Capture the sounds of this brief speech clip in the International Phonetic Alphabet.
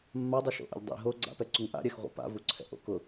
mːadˤɛʃo̰ʔɛ̰ʎ dˤḭ ɦo ɡ͡ǀa̰pɛǀuŋ ʔa̰ɾʲɛxʁʷa̰ pa̰vuǀʰɛ̰ʔo̰ kʊ

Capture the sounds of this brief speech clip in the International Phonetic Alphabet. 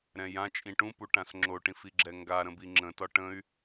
ɾɛ̃jãt͡ʃʼĩ ʈũ puʈãsŋ͡ǁoʈĩf iɡ͡ǁɛŋɡaɾə̃ biŋ͡ǁə̃tɒ ʈə̃y̯

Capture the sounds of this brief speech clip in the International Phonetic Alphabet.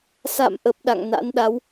sa̰˧˨mʔə˨˩p̚ ɗa̰˧˨ŋna̰˧˥nɗa˨˦w

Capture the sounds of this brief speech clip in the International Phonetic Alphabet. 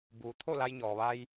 buː˩ t̪ʰo˥˨la˧jɲɔː˩ ʋa˧j

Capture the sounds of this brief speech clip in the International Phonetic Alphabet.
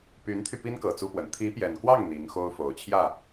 py˧˥nt̪ʰy˧ pi˥nkɤ˨˩ t͡su˥pwə˧˥n t̪ʰi˧˥pjɛ˨˩nkwɑ˥˩ŋ n̪i˧˥ŋxo˥ʊ̯ fo˨˩ʊ̯t͡ɕʰjä˥˩

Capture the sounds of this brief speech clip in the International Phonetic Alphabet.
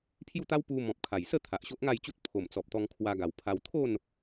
pʰju˥˧t̪a˦w pu˧ mɔ̃˨p̚kʰa˨˩jsə˥˧ t̪ʰa˨ʔ ɕo˦ʔŋa˥˧jt͡ɕu˦t̚ pʰo˨˩mt͡sɔ˨p̚ t̪ɔ˧ŋkʰwa˧ɡa˨˩wpʰa˧w t̪ʰo˥˧n

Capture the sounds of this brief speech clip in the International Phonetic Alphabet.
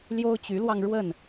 ljo˦ʊ̯t͡ɕy˨˦lwɑ˧ŋ ɻwə˥˨n

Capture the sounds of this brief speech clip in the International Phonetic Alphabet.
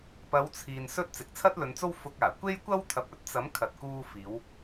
pɐ˨˧wt͡sʰiː˨nsɵ˧t̚ t͡sɪ˨k̚t͡sʰɐ˥t̚lɵ˨˧nt͡so˥w fʊ˧k̚aː˨˩ kʷe˥jkʷɐ˥w t̪ʰɐ˨p̚ɵ˥t̚t͡sɐ˨˥m kʰɐ˨t̚kuː˧fiː˨˧w

